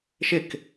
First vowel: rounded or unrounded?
unrounded